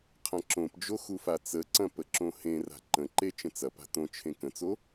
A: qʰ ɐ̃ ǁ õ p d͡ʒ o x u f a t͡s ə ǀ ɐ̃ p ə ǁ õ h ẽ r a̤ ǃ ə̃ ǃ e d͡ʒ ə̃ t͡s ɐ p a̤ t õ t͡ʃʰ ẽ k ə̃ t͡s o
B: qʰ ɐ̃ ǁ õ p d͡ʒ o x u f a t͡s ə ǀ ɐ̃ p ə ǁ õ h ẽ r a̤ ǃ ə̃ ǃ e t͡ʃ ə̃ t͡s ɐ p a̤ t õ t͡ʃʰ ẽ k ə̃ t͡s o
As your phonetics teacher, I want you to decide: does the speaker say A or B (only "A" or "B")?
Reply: B